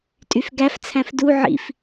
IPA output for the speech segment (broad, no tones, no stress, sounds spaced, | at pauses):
tʼ y f ɡ æ f t͡sʰ æ̃ f d u ʕ ḭ f